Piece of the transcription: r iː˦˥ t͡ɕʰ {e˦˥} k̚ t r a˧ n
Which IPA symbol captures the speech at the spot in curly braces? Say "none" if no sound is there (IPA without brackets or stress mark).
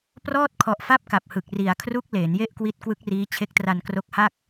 e˦˥